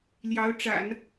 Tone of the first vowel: rising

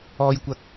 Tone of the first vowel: low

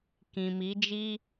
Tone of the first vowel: low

